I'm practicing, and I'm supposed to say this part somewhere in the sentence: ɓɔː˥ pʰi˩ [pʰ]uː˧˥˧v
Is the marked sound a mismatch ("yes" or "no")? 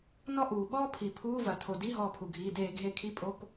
no